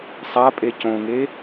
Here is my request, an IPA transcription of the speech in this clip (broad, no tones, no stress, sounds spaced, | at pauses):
sˤ a pʼ e c õ ŋ e